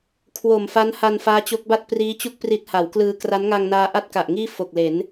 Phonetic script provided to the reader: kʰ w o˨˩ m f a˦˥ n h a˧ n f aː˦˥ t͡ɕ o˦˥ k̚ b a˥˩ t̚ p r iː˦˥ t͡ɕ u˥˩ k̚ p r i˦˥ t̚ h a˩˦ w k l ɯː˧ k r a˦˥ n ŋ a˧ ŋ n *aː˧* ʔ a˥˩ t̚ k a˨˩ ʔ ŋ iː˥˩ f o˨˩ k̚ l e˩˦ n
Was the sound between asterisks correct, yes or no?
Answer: yes